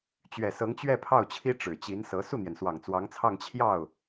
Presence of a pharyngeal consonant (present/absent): absent